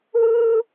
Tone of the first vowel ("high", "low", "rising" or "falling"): high